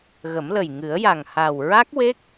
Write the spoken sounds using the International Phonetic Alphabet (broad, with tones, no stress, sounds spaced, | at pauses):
ɣ ə˨˩˦ m l ə˨˩ j ŋ ɨ˨˩˦ ə̯ j a˨˩ ŋ h a˨˩ w ɹ a˦˥ k̚ w e˦˥ k̚